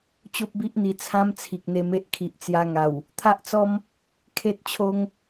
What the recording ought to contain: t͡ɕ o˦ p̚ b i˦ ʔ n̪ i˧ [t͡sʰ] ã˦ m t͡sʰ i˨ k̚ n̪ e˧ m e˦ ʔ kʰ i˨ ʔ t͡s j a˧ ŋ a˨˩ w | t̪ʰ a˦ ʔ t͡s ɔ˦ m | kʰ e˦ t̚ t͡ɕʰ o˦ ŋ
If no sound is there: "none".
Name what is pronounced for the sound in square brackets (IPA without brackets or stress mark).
t͡sʰ